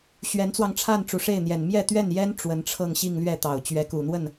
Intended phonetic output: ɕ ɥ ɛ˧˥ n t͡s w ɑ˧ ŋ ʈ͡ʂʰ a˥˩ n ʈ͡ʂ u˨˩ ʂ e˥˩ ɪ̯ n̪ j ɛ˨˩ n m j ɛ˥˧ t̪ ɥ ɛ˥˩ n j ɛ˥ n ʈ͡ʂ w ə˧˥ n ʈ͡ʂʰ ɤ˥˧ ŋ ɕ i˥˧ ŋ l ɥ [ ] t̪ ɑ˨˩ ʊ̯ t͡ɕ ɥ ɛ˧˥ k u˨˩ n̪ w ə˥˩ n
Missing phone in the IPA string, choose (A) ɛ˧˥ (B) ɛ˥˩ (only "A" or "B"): B